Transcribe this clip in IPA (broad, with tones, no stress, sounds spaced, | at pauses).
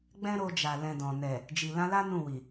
ɡ͡b ɛ̃˦ ɾ o˧ d͡ʒ a˨ l ɛ̃˧ d ɔ̃˨ n ɛ˨ | d͡ʒ i˨ l ã˧ l a˦ n ũ˦˨ w i˨